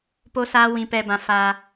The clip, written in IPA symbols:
po˦saː˦ wĩ˨pɛ˨bã˨ faː˦

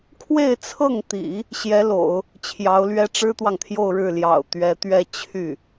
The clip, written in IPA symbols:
kʰwe˥˧ɪ̯t͡sʰɤ˥˩ŋt̪ḭ˨˩˦ | ɕjɛ˧˥lo̰˨˩˦ʊ̯ | t͡ɕʰjɑ˧˥ʊ̯lɥɛ˥ ʈ͡ʂɻ̩˥t̪wɑ˨ŋt̪ʰjo˥˧ʊ̯ɻɻ̩˥˩ ljɑ̰˨˩ʊ̯ t̪ɥɛ˧˥t̪ɥɛ˥˧ t͡ɕʰy˥˩

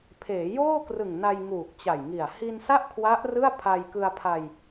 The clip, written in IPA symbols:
pʰeː˩˦joː˥˩krɯ˨˩ŋ na˧jŋuː˨˩k̚t͡ɕa˨˩jŋi˨˩a̯ hi˧nsa˥˩ʔkʰwa˦˥ʔ rɯ˥˩a̯pʰa˧j kɯ˧a̯pʰa˧j

